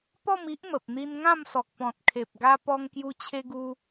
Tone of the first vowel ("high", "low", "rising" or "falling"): falling